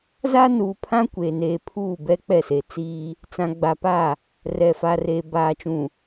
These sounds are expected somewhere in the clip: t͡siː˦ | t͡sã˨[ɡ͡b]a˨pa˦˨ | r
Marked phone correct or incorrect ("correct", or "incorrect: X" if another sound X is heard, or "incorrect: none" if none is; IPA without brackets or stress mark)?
correct